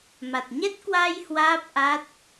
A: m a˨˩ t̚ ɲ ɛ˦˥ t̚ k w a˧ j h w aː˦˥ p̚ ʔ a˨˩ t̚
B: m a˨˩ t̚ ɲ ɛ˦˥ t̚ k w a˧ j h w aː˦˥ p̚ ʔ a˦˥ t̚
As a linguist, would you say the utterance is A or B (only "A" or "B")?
B